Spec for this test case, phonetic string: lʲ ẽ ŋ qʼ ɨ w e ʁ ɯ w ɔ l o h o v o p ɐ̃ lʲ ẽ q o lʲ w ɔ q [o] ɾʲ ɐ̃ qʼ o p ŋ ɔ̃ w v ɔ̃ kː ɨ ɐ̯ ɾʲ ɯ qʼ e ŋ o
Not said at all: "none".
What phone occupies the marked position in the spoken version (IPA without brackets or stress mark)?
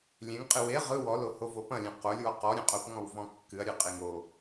ɔ